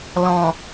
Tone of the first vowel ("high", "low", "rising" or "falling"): low